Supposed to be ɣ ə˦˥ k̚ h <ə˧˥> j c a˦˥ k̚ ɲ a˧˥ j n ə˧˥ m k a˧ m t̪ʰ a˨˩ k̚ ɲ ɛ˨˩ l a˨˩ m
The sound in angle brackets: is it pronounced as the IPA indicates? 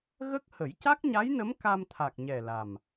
no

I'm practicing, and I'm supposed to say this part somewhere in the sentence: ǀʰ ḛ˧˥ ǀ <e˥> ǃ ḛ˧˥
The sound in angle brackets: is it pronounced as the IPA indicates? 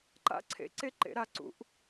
yes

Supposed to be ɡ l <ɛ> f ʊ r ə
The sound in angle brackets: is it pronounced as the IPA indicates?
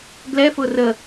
yes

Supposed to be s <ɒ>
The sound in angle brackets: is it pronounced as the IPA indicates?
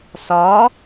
yes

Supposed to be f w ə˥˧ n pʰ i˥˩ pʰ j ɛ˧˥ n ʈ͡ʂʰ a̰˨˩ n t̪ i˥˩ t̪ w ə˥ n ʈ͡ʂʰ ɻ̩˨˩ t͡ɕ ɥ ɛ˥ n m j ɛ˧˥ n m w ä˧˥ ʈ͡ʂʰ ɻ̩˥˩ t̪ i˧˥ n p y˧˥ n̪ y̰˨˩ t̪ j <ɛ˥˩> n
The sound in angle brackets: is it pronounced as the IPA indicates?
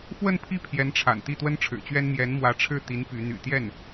yes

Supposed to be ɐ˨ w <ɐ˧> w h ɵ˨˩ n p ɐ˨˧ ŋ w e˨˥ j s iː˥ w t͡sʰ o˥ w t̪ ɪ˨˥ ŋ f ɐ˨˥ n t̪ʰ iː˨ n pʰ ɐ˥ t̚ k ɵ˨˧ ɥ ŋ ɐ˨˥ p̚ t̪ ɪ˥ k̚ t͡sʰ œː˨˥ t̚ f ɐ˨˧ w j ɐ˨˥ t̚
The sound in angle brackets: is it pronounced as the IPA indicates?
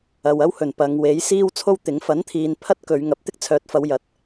no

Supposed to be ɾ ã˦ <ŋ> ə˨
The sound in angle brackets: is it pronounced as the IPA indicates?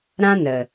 no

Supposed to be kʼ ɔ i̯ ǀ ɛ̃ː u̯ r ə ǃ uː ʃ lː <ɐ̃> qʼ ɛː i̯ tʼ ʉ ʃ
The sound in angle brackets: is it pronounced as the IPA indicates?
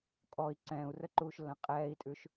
yes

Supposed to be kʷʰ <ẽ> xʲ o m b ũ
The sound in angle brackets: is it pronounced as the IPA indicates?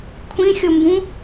no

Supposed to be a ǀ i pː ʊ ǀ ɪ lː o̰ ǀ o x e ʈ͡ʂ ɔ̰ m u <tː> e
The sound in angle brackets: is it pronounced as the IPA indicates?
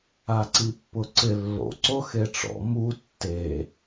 yes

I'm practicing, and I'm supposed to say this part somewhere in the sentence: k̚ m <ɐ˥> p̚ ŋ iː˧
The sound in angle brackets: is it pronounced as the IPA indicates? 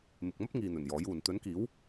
yes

